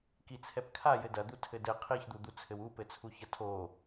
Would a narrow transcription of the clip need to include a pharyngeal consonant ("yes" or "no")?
no